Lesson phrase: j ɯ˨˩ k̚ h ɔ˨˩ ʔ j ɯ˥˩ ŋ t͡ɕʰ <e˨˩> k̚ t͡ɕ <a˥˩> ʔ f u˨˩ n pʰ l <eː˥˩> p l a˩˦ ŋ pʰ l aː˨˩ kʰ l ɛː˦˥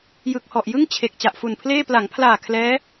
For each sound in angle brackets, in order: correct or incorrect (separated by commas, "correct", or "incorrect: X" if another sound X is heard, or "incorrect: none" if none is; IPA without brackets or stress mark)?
correct, incorrect: a˨˩, correct